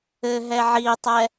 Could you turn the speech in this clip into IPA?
ɘ ɦ ɛ ʕ i tˤ ɛ

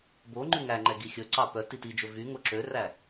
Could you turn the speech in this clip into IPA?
b o ŋ͡ǃ ʉ ŋ æ ŋ͡ǃ ɛ ɡ i xʲ ɵ ǀ ɑ p œ t i t i d͡ʒ ɵ v y ŋ o ǁ ø r æ

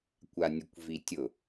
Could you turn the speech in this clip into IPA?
kʷ a nʲ ʊ kʷ v i tʲ ʊ

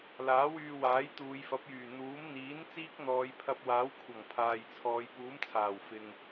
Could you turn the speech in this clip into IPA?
l aː˨˥ w yː˧ w aː˨˥ j t̪ uː˨˧ j f ɐ˨˥ p̚ j yː˨˩ n̪ uː˨˥ m n̪ iː˨˥ n t͡s iː˥ k̚ n̪ ɔː˨˧ j pʰ ɐ˧ p̚ w aː˨˥ w kʷʰ ɐ˨˩ ŋ pʰ aː˨ j t͡sʰ ɔː˨˧ j p uː˨˥ m t͡sʰ aː˨˩ w f ɪ˨ ŋ

